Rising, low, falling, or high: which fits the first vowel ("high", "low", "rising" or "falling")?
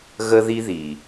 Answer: high